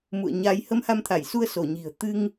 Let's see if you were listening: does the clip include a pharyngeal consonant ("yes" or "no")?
no